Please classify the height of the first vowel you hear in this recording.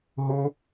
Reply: high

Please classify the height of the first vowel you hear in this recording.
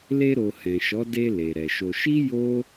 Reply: mid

